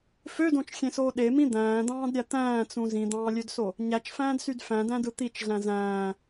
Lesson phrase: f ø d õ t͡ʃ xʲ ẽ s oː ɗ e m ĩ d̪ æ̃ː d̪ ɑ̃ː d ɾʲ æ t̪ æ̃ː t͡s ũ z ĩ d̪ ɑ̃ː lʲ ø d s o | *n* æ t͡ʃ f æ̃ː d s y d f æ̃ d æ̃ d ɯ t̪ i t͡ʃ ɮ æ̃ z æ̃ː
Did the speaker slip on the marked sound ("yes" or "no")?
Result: yes